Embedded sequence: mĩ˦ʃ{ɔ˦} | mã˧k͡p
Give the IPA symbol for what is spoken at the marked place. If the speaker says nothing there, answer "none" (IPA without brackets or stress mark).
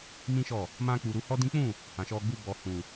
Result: ɔ˦˨